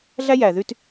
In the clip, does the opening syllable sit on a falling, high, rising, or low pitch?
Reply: high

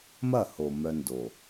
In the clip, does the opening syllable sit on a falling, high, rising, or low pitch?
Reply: falling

